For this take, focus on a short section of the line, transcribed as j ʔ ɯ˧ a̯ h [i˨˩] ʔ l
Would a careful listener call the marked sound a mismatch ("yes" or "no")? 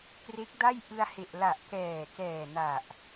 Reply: yes